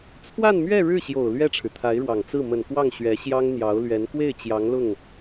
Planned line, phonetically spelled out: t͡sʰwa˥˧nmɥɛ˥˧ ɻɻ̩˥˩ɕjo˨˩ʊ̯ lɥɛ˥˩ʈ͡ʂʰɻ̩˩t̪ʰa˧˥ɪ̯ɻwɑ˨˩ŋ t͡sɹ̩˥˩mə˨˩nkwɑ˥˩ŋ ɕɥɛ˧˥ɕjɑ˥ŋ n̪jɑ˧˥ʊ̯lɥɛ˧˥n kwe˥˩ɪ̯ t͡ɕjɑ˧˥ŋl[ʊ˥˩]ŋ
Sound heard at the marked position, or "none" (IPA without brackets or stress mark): ʊ˥˩